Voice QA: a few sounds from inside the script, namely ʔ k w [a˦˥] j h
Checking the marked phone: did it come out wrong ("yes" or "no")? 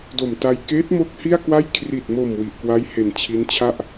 no